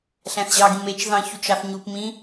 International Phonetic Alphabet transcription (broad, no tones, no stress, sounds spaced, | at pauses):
ɬ æ̃ θ ʑ ɑ ɡ ĩ m e t͡ʃ ð ɑ̃ ç u t͡ʃ ɑ θ ɲ u p m ĩ